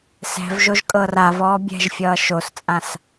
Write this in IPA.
s ɛ̤ v ʒ o ʒ kʼ ɤ r a v ɔː bʲ ɛ̤ ʒ fʲ ʌː ʃ o s t͡sʼ ã s

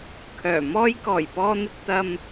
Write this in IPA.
kʰ œː˨˩ m ɔː˥ j k ɔː˨˩ j p ɔː˧ n̪ ɪ˧ k̚ t̪ ɐ˧ m

